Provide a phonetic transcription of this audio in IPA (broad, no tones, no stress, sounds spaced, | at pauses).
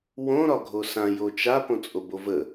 w õ ɾ ɒ ɡʱ o s ã j o t͡ʃ a p õ t͡sʼ o b o v ə